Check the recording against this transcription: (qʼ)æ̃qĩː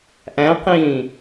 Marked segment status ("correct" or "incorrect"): incorrect